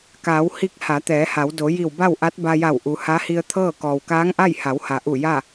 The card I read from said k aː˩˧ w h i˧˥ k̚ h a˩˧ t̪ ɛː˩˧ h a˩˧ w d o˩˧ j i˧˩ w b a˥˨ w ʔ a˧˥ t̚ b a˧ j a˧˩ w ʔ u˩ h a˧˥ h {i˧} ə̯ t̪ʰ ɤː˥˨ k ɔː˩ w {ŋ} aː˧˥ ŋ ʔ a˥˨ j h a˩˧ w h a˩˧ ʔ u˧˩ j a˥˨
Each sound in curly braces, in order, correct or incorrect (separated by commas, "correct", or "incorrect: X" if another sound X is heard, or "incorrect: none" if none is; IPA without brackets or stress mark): correct, incorrect: k